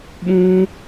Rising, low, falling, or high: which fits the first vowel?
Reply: high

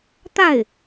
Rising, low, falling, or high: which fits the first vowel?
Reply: falling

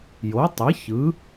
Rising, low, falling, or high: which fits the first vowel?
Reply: rising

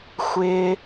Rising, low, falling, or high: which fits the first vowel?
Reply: low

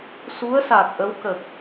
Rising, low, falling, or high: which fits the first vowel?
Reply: rising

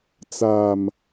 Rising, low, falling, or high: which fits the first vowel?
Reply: falling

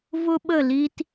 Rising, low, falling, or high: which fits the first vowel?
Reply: high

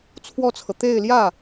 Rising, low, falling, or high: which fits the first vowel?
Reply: falling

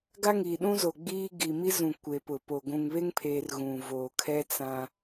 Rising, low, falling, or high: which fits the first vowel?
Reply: high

